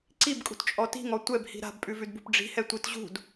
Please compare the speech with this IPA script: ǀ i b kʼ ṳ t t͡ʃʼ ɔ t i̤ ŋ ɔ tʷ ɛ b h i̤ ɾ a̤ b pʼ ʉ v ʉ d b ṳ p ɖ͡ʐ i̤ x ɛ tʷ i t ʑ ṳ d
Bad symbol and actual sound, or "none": x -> h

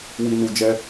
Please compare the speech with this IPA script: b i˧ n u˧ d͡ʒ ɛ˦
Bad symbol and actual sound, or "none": b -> w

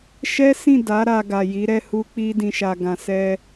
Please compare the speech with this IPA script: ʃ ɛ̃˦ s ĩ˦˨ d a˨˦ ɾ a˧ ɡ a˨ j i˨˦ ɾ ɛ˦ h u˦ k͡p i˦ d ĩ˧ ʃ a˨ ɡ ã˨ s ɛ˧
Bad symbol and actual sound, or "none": ɛ̃˦ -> ɛ˦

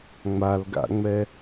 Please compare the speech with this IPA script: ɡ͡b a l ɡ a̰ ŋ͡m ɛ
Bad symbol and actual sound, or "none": ɡ͡b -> ŋ͡m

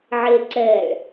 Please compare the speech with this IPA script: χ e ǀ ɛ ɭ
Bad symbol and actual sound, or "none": χ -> ʕ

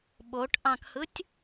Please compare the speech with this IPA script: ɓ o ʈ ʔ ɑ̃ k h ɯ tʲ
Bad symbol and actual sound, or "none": none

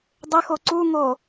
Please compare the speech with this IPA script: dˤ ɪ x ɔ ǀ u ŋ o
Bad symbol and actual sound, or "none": ɔ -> o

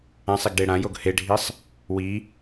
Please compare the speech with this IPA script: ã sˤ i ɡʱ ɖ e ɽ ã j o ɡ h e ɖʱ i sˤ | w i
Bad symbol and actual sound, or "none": ɡʱ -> ɡ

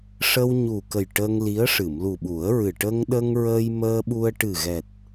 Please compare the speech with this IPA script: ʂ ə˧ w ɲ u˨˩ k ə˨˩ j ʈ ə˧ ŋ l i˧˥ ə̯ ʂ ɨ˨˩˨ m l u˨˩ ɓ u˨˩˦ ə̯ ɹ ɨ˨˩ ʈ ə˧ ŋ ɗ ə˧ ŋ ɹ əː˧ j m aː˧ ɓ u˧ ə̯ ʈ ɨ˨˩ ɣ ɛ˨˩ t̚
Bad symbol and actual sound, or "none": aː˧ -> əː˧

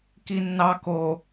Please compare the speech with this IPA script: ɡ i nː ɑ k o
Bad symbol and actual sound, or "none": ɡ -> k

